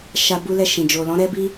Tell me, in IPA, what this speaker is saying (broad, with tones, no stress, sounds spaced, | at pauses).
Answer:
ʃ a˧ b u˦ l ɛ˦˨ ʃ ĩ˨ d͡ʒ o˨ l ɔ̃˨˦ ɾ ɛ˦ b i˦